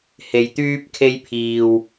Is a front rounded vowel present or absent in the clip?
present